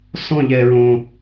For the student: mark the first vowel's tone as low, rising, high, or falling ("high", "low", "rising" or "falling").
falling